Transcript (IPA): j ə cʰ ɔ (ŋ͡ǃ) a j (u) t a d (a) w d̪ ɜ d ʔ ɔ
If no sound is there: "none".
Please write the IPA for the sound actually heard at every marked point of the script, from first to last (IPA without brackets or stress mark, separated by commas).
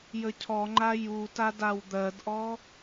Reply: ŋ͡ǃ, u, a